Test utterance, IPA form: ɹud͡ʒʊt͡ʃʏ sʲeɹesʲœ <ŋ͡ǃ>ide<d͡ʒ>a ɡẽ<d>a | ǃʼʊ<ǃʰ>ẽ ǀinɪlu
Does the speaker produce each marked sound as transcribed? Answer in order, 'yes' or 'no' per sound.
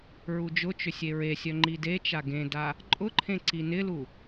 yes, no, yes, yes

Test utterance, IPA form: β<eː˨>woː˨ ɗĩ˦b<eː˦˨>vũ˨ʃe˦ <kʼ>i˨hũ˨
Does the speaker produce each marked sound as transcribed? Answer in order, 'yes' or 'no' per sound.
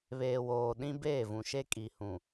yes, yes, yes

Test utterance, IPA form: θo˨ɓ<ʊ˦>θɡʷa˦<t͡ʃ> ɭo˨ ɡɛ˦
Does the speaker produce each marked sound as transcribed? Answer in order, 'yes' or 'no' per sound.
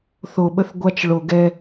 no, yes

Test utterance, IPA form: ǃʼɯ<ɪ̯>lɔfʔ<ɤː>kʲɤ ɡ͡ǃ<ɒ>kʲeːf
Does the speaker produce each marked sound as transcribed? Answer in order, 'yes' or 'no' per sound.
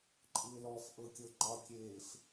yes, no, yes

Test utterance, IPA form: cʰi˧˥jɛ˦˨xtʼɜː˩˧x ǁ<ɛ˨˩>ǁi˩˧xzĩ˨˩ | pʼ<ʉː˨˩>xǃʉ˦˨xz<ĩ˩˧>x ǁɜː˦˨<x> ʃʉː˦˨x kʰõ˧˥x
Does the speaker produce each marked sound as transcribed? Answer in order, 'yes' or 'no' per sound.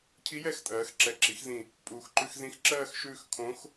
yes, no, no, yes

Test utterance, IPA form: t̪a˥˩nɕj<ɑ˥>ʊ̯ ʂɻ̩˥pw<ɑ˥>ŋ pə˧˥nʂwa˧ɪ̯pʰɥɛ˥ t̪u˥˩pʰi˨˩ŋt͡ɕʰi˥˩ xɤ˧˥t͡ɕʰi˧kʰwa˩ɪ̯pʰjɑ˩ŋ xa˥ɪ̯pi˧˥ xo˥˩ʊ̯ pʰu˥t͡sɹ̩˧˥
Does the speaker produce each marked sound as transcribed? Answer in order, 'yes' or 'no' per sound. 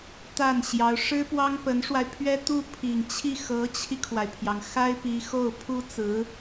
no, yes

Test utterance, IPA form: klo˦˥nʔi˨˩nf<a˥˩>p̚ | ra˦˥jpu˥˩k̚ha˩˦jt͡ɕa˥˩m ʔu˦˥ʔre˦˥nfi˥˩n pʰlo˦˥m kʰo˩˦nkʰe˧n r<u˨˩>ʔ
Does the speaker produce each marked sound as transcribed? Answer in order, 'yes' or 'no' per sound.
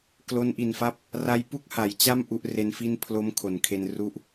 yes, no

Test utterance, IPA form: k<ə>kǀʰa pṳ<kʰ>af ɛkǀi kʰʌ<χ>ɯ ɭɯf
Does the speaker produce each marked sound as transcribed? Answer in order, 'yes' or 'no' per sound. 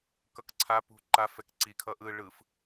no, no, no

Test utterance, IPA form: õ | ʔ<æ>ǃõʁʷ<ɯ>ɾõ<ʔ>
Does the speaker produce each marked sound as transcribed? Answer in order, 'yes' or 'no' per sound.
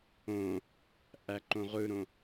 yes, yes, no

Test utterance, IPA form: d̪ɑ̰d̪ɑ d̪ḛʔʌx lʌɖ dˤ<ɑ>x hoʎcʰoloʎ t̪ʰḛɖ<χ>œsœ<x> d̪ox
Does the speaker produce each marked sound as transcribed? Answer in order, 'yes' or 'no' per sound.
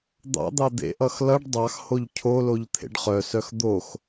yes, yes, yes

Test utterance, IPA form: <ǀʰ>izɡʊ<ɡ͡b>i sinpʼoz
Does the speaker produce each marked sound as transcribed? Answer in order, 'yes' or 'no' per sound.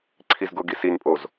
yes, no

